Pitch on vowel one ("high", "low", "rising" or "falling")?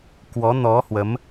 rising